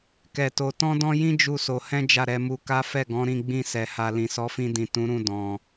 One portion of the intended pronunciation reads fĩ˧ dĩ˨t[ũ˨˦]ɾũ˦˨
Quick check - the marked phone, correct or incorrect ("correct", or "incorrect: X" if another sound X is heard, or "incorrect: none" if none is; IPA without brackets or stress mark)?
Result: correct